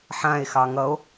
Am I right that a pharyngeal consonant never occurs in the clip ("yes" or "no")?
no